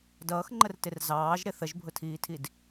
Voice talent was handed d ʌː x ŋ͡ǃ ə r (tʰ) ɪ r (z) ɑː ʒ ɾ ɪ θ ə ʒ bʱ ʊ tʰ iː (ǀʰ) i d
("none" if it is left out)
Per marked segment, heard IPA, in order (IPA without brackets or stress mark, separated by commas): t, z, tʰ